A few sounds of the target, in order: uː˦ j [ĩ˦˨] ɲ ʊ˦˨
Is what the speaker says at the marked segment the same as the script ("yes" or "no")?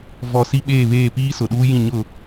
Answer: yes